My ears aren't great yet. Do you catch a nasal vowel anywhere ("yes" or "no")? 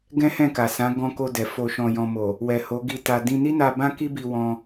yes